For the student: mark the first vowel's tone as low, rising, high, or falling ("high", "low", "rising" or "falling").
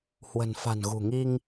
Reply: low